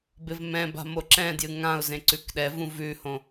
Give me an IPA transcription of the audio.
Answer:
bɪvmɛ̃ba̤ moǁɛ̃djɨ ŋãʊ̯zẽ ǀʉkɗɛvũ vʉhõ

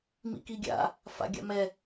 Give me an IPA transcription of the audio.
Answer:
mḭkiɡʲa̰ | fa̰ɡʲa̰mɛ

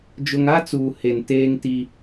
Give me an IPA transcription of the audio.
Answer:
d͡ʒʊ˦ŋ a˦t͡suː˨ he˨n teː˦ŋ ti˦

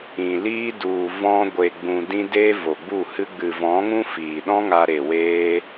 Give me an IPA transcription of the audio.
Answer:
ĩ˨liː˦ du˨ vɔ̃˧ ɡʷe˨ɡ͡bũ˨dĩ˧ deː˦vo˨ɡ͡bu˦˨hɨ˦ ɡ͡bɨ˨vɔ̃˨˦ŋũ˦ fiː˨ɗɔ̃˦ ŋa˧ɾe˨ weː˦

